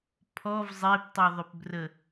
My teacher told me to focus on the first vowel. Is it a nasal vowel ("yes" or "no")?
no